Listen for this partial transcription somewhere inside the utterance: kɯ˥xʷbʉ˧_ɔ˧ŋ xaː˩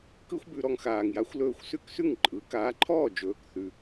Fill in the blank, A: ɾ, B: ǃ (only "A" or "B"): A